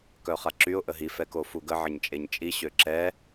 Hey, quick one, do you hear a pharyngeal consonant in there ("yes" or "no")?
yes